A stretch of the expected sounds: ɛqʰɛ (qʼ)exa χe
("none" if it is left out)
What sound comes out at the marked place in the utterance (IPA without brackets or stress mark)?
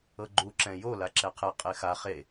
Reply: qʼ